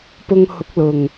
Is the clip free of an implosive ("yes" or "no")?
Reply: yes